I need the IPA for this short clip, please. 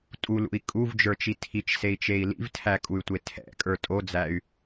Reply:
tʼ u l ṵ i̯ kʼ u v d͡ʒ ə˞ t͡ʃ i tʰ i t͡ʃ s e i̯ t͡ʃ e i̯ l ḭ v tʰ æ kʼ u y̯ tʷ e tʰ ɛ̰ kʼ ə˞ tʼ o d͡z æ y̯

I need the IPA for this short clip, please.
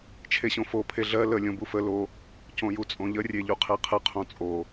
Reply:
t͡ʃʰ e ɕ õ f o pʰ e ɮ ɜ l ə lʲ õ b u f ə l o | c õ j u t͡sʼ õ ʎ ə rʲ e ʎ u qʰ e qʰ ə qʰ õ t͡sʼ o

